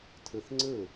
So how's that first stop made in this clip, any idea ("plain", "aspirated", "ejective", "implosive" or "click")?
aspirated